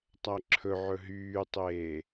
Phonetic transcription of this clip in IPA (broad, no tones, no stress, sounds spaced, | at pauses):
tˤ æ ǁʰ ɵ ʕ ɵ ɦ yː tˤ eː